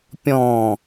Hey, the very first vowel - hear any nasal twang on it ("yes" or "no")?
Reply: yes